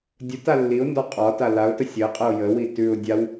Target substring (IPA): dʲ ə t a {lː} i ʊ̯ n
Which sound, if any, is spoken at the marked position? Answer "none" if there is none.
lː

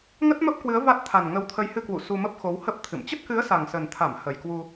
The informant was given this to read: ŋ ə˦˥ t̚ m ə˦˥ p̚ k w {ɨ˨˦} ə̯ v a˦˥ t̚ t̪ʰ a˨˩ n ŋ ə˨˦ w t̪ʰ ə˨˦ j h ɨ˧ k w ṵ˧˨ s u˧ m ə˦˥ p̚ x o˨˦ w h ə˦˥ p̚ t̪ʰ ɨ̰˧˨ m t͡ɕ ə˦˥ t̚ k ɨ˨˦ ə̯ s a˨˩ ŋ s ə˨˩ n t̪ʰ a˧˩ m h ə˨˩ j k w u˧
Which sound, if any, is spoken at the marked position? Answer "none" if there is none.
ɨ˨˦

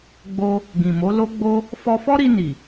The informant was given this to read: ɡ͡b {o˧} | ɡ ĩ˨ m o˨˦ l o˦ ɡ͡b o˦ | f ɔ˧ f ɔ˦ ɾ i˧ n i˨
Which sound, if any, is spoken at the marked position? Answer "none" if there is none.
o˧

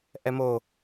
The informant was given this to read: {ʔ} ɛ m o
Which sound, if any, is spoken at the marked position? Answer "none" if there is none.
ʔ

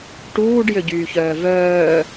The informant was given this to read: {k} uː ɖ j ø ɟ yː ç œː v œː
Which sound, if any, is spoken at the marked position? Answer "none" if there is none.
ʈ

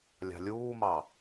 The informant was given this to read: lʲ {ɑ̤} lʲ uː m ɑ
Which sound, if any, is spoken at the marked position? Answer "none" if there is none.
ɑ̤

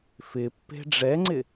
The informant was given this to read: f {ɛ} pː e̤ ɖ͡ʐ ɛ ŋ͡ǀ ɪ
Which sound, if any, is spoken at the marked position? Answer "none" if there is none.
ɪ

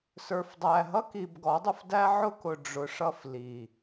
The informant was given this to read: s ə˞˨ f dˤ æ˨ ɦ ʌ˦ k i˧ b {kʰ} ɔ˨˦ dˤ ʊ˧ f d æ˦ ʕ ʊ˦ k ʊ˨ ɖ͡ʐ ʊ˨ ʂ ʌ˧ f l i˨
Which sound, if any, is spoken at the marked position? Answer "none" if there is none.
ɡ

